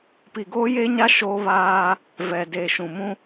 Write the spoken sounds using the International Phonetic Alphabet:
p i˨ ɡ oː˦ j e˦ ɲ a˦ ʃ oː˦ β aː˦ | v ɛ˨ d eː˨ ʃ ũ˨ m ũ˦

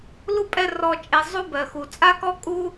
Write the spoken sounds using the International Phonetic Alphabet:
l u˦ pʼ ɛ˧ r ɔ˨ t͡ʃʼ e˨ zˤ u˦ b ɜ˨ x u˨ t͡sʼ a˦ k ɔ˦ kʼ u˦

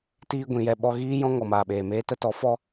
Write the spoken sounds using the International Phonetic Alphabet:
t iː˧ ɡʷ ĩ˧ j ɛ˦ ɓ ɔ˧ ɣ iː˦ j ɔ̃˦ ŋ ɔ˨ m aː˨ ɓ eː˨ m eː˦ t ə˦ t ɔ˨˦ f ɔ˦

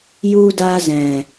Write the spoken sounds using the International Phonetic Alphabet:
j u˧ d a˧ z ɛ̃˨

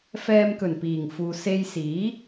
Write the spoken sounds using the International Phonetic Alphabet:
f ɛː˧ m k ɵ˨˩ n p iː˨˩ ŋ f uː˨ s e˧ j s iː˨˥

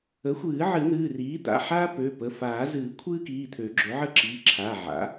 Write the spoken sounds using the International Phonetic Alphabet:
ə˩˥ xʷ ɨː˨˩˦ ʕ ɨ˨˩˦ n̪ ɨː˩˧˩ r iː˩˥ d̪ a̰˩˧˩ ħ aː˥ p ø˩˧˩ p ə˩˧˩ f aː˨˩˦ z ɨː˨˩˦ kʷʰ ɨː˥ k iː˩˧˩ t̪ʰ ø˨˩˦ ɡ͡ǁ ø˩˥ ʕ ə˥ ǁ iː˩˧˩ ǁʰ a˩˧˩ ʕ a̰˩˥

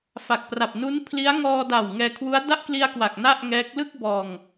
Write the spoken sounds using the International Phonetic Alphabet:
f a˨˩ k̚ p r a˨˩ p̚ n u˦˥ n pʰ l i˦˥ a̯ ŋ ɔː˧ d a˨˩ w ŋ ɛː˧ kʰ w u˦˥ a̯ d a˥˩ ʔ k l i˧ a̯ k w a˨˩ k̚ n a˥˩ ʔ ŋ ɛː˦˥ k̚ l ɯ˥˩ k̚ b ɔː˧ ŋ

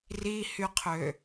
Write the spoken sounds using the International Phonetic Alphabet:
r i h y qʰ ø

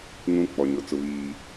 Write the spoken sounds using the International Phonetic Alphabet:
ŋ ũ˦ k͡p ɔ˨ ɲ ʊ˨ t͡s ʊ˨ β iː˨

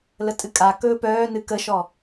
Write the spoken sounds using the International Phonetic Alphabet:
l ə tʼ ɨ kʼ a k ɵː p œː n ɨ k ə ʃ ɔ

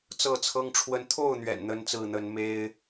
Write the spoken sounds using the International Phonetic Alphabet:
t͡s ɤ˥˨ t͡sʰ ɤ˦ ŋ ʈ͡ʂʰ w ə˦ n t̪ʰ o˥˨ ʊ̯ n̪ ɥ ɛ̰˨˩ n n̪ ə˦ n t͡s ɹ̩˥˨ n̪ ə˨˦ n m e˦ ɪ̯

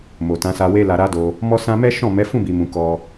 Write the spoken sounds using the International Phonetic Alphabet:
m o˨ t ã˨˦ s a˧ w e˦ l a˧ ɾ a˦ d o˧ | m ɔ˦ s ã˦ m ɛ˦ ʃ ɔ̃˦˨ m ɛ˨˦ f ũ˦˨ b i˨ m ũ˨ k ɔ˧

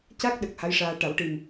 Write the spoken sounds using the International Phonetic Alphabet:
c a˦˥ k̚ ɗ ə˨˩ k̚ h a˧˥ j ʂ aː˧ ʈ a˨˩˦ w ʈ i˨˩ m

